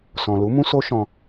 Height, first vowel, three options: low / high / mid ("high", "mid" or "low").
mid